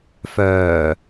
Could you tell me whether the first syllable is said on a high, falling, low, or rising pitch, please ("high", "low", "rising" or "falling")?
low